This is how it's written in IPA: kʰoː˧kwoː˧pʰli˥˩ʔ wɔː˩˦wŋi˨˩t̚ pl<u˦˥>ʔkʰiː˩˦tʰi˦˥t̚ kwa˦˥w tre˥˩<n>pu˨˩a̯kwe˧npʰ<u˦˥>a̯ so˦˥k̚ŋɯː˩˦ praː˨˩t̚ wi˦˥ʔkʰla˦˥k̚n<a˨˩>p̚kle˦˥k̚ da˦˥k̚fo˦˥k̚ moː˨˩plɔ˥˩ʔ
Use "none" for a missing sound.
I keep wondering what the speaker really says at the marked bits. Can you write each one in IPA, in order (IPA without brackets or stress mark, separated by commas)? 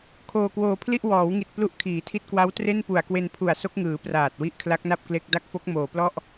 u˦˥, n, u˨˩, a˥˩